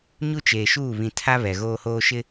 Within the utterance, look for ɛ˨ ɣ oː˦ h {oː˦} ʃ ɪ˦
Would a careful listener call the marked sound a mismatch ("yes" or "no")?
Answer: no